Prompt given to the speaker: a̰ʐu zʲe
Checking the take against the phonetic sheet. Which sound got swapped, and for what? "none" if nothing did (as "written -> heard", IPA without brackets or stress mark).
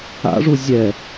e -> ɛ